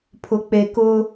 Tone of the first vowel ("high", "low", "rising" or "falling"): low